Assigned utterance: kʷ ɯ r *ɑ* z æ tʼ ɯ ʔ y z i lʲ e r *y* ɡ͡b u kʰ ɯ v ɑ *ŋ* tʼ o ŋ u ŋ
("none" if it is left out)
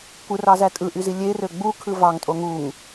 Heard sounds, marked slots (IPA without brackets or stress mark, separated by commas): ɑ, ø, ŋ